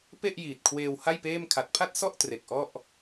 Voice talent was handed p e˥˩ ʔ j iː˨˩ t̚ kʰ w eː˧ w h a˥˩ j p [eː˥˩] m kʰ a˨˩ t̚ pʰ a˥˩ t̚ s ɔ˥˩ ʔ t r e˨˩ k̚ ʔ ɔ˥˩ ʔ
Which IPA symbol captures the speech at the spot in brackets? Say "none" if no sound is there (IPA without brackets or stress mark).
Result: eː˥˩